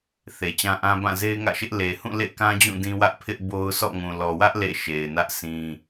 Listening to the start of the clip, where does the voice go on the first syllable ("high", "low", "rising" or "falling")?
low